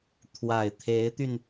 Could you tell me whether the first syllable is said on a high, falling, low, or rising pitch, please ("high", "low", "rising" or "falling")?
low